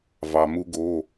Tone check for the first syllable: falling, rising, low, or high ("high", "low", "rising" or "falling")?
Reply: low